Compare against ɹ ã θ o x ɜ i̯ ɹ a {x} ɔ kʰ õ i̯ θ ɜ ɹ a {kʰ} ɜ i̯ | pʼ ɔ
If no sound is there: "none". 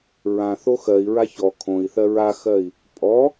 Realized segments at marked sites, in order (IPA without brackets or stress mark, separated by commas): ç, x